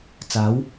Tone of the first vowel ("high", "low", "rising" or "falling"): rising